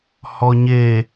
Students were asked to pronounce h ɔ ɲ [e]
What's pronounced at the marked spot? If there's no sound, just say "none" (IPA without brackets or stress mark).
e